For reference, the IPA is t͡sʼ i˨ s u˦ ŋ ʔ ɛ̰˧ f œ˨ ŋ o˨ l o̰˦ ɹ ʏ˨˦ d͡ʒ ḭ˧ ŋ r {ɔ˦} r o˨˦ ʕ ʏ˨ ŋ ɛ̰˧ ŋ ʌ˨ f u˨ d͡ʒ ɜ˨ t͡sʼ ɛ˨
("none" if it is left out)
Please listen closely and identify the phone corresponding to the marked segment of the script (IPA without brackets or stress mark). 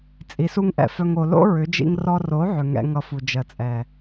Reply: ɔ˧